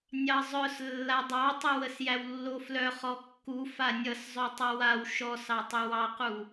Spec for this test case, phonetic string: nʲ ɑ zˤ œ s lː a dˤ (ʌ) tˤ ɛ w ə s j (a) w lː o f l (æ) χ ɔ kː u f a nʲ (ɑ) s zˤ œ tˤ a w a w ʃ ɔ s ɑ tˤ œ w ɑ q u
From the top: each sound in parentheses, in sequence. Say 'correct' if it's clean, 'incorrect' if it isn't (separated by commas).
incorrect, incorrect, incorrect, incorrect